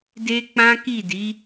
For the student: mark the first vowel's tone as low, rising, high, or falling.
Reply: high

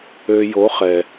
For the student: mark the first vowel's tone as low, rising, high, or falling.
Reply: low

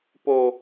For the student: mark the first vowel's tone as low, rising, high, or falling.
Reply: low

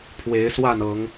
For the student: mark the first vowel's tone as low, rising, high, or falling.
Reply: rising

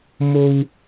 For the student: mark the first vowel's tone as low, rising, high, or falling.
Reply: high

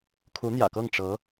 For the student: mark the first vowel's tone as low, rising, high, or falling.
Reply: rising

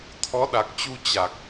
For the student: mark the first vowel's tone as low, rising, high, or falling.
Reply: rising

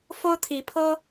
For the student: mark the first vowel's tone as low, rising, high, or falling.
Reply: high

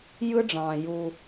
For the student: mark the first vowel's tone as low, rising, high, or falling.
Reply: high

